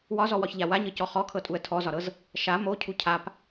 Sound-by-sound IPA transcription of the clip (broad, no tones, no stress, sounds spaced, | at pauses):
w ɒ z ɔ w ɒ ç ʎ a w a ɲ ɤ c ɔ χ ɔ kʰ ɤ tʼ u ə̯ tʰ ɔ z ɒ ɾ ɤ z | ʃ a m o cʰ u cʰ a p